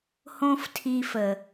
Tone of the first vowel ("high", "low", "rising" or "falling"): high